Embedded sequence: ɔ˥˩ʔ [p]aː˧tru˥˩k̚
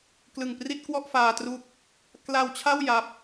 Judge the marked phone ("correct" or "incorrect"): incorrect